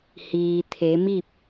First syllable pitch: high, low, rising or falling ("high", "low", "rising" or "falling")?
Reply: low